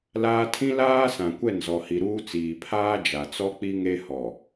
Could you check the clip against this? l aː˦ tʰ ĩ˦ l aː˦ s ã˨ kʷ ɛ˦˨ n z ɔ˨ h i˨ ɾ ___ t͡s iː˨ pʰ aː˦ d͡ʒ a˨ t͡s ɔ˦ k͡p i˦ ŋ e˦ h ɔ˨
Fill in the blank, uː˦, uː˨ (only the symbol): uː˦